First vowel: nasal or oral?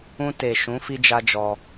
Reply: nasal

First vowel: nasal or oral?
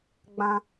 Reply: nasal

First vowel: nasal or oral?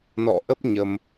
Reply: oral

